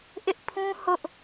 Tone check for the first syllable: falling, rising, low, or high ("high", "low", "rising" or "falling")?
high